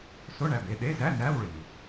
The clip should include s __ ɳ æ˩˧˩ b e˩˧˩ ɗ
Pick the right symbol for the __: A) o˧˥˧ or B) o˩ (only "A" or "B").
A